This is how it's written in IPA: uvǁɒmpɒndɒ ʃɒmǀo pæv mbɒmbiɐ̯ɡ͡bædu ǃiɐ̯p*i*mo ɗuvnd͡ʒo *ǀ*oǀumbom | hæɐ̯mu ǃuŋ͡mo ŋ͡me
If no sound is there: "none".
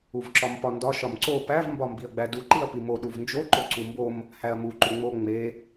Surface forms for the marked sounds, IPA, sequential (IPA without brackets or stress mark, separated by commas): i, ǃ